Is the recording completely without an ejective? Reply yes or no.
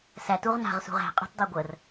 no